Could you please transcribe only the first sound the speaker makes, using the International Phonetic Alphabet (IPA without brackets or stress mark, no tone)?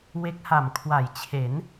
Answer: w